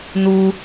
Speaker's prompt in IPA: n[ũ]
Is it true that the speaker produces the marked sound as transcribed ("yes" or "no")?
no